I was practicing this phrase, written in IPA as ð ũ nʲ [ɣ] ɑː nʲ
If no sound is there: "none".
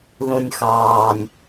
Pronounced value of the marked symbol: x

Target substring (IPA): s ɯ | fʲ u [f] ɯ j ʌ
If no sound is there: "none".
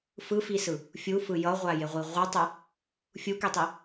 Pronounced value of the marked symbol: f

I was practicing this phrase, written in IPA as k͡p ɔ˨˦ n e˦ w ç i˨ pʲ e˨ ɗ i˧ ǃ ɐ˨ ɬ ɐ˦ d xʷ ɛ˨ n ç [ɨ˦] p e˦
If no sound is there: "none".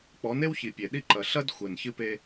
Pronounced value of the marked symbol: ɨ˦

